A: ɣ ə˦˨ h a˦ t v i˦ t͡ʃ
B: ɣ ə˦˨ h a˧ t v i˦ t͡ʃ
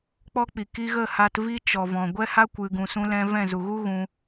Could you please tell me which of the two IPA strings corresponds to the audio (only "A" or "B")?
B